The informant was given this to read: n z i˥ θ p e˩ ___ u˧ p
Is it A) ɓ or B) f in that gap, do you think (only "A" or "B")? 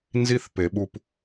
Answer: A